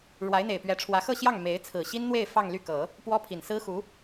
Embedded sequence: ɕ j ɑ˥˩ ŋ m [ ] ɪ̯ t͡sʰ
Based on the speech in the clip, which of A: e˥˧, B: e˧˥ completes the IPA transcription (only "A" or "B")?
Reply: B